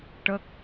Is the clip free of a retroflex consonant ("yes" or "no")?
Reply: no